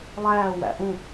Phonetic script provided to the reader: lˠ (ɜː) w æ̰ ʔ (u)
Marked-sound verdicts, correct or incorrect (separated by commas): incorrect, incorrect